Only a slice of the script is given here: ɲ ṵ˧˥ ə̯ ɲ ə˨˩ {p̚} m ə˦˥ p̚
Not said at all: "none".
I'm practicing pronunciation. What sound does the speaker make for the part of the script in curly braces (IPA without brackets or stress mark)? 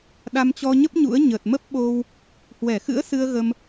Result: t̚